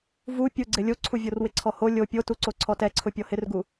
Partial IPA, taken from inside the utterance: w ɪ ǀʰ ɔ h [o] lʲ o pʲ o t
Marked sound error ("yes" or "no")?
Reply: no